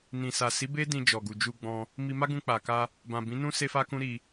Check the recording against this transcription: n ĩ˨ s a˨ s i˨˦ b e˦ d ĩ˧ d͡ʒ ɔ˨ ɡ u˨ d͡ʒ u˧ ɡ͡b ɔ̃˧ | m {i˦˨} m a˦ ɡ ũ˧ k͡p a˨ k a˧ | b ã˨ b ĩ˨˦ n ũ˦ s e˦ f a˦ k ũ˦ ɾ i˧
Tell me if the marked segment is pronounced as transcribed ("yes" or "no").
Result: no